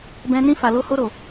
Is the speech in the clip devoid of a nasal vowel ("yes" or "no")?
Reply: no